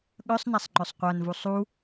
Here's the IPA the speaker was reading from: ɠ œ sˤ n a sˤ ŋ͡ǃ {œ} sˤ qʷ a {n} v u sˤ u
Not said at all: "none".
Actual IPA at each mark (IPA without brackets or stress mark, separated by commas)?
œ, n